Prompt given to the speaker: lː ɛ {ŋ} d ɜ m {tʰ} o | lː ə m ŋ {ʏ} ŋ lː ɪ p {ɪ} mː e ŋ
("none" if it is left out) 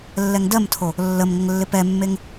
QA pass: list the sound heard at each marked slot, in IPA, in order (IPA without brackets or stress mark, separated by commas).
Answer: ŋ, tʰ, ə, ɛ